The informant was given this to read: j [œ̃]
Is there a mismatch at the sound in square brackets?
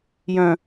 no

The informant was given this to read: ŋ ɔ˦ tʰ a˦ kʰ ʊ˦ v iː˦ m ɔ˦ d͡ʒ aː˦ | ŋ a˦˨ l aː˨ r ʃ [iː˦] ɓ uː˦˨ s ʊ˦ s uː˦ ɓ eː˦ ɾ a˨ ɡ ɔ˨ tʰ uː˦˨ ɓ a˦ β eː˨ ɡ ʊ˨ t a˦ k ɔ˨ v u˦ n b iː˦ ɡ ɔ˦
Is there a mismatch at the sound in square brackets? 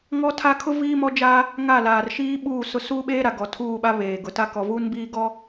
no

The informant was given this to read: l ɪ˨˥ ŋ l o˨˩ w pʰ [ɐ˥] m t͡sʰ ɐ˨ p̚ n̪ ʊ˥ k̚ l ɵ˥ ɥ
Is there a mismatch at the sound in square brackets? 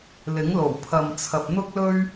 yes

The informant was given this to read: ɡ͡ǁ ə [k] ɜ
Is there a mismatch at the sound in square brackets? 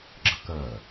no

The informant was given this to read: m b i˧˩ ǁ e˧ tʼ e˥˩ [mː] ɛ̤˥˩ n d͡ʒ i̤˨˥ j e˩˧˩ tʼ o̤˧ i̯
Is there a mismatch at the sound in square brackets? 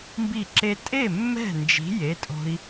no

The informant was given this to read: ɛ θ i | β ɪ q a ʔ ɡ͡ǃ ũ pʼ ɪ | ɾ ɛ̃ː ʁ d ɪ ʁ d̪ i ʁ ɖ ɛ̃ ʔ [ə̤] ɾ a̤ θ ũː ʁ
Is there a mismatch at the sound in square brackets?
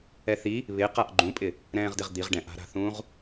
yes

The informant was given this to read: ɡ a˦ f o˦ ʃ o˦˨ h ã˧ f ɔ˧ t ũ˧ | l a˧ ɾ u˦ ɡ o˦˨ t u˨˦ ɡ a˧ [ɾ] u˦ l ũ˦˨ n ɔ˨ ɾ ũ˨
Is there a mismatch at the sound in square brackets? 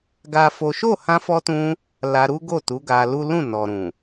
yes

